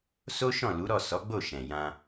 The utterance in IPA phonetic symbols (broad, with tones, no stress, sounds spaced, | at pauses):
s o˦ ʃ ɔ̃˦˨ l u˨˦ ɾ ɔ˦˨ s ɔ˨˦ ɡ͡b o˦˨ ʃ ɛ̃˨ j ã˧